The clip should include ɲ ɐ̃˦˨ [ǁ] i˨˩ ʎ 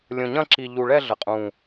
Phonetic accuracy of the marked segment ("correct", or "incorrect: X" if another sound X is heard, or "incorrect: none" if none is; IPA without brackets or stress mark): correct